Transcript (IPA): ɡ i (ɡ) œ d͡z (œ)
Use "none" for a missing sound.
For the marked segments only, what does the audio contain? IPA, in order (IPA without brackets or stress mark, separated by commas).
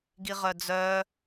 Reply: ʁ, œ